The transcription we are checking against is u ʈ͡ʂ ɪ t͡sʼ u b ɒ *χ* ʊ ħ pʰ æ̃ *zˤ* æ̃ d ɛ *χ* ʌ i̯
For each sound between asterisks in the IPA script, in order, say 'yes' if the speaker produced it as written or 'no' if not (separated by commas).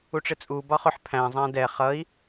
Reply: yes, yes, yes